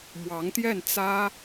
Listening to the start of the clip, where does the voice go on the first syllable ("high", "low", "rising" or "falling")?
rising